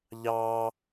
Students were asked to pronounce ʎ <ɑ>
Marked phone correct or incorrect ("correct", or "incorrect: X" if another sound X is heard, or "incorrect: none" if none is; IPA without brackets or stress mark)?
correct